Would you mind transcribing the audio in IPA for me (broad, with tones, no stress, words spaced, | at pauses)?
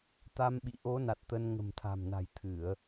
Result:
t̪a˧mɓḭ˧˨ ʔo˨˦na˨˩t̚ t̪ə˧n ŋə̤˨˩mt̪ʰa̤˨˩mna̤˨˩j t̪ʰɨ˧˩˨ə̯